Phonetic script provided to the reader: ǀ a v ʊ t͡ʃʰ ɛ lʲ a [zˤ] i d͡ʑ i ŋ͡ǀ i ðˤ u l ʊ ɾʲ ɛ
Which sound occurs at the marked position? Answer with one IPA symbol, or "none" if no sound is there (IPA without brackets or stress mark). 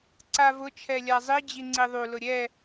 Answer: zˤ